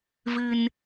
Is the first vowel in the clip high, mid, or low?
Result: high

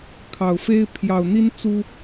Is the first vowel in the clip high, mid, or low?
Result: low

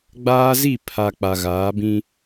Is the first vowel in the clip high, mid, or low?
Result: low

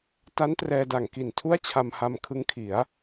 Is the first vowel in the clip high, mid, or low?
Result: low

